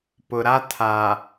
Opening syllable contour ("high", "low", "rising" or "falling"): low